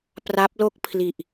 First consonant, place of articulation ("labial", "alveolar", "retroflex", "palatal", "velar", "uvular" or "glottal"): labial